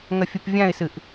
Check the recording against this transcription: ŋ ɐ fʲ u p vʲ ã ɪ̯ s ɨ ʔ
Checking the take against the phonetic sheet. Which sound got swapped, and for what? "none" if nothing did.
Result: none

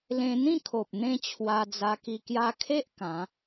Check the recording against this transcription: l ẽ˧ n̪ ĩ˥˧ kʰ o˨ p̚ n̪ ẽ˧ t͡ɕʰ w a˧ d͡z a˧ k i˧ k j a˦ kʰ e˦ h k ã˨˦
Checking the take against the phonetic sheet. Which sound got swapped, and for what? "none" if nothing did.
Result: h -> ʔ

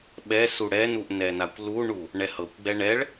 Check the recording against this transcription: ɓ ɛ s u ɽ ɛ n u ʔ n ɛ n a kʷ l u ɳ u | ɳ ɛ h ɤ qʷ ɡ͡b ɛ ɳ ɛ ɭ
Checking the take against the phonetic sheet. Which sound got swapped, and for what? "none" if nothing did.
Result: qʷ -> kʷ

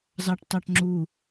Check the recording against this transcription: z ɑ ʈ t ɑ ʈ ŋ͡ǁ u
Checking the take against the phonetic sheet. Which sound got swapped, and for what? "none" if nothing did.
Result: none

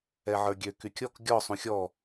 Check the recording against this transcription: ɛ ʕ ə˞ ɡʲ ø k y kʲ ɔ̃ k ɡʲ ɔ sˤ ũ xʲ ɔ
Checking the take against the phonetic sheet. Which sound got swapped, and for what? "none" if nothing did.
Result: ɔ̃ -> ɔ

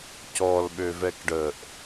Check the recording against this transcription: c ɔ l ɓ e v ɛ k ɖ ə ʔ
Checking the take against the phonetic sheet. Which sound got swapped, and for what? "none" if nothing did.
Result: e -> ø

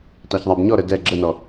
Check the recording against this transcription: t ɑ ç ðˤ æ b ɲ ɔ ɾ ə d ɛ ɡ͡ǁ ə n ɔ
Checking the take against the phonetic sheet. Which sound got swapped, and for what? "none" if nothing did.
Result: none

